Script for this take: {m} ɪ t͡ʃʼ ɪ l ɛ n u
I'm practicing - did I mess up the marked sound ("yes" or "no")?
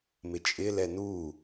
no